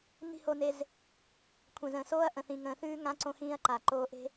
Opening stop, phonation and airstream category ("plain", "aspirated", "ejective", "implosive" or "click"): aspirated